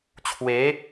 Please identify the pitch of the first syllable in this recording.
rising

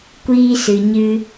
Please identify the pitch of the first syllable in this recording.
high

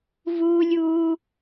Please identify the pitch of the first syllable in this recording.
high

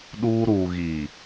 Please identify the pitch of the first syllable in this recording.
high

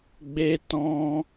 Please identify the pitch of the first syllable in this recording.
high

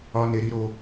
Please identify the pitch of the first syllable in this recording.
high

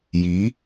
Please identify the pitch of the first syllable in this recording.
rising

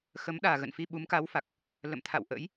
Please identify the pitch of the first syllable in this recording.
rising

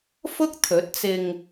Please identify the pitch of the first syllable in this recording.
high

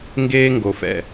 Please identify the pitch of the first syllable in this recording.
high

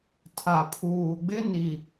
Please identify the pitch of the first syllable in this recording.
low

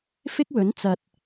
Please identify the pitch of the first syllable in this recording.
high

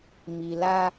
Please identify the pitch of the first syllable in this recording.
low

